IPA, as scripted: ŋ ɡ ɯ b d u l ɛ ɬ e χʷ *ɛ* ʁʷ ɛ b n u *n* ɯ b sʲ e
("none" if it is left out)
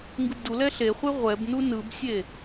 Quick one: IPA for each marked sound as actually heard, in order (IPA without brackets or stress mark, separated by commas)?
e, n